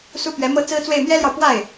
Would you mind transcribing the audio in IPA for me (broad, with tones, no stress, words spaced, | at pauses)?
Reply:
su˥pɥɛ˧˥mɤ˥ t͡sɹ̩˥t͡swe˥˩ɪ̯ mjɛ˥ljɑ˨ʊ̯pwa˥˩ɪ̯